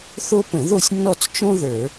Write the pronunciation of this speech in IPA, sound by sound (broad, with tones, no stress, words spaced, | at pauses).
θo˥ pə̃˧˩˧ðo˦˨sʲnːɔ˦˨t͡s t͡ʃõ˥ðə˞˧˩˧